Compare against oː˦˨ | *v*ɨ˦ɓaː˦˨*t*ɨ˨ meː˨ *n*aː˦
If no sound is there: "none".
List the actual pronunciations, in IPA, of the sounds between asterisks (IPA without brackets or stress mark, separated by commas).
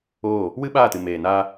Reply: w, t, n